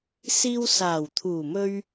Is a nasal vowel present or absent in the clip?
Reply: absent